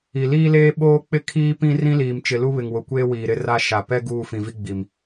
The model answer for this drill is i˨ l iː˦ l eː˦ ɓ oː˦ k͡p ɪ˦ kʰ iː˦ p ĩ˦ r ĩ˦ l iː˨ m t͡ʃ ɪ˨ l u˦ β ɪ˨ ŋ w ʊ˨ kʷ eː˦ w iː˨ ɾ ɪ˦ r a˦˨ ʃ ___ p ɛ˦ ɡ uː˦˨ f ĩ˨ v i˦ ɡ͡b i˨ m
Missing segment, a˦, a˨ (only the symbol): a˨